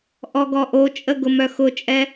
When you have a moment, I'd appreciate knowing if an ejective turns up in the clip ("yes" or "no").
yes